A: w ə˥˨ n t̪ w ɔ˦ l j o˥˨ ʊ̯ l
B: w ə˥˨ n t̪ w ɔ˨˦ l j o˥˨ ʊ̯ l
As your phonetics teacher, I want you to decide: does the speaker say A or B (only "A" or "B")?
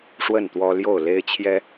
A